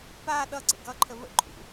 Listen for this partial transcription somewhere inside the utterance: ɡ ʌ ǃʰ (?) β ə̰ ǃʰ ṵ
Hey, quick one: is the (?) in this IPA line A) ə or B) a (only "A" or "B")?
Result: A